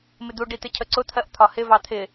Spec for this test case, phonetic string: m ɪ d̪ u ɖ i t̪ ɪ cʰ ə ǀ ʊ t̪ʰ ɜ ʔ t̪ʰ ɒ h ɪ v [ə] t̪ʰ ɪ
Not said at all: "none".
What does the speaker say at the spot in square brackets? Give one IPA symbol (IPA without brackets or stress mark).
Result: ɑ